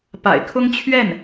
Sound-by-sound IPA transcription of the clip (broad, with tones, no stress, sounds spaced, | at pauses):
p a̰˨˩ ɪ̯ kʰ ʊ˥ ŋ t͡ɕʰ ɥ ɛ˥˩ n